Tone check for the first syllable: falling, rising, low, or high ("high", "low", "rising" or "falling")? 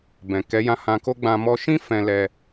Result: low